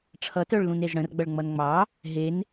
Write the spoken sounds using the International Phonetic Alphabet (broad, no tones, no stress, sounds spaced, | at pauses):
ʈ͡ʂʰ ʌ t œ ɭ l ũ n e z ɽ ə̃ r ɡ͡b ʌ ɭ ŋ͡m ʌ n ŋ͡m ɑ | ɦ e n